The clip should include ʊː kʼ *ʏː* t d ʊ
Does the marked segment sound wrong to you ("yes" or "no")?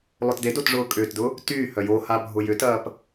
no